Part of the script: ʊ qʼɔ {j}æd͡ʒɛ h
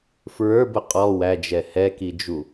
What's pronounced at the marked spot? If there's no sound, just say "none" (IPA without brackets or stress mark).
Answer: w